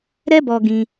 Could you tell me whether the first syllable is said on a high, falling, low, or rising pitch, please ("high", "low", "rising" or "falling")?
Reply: high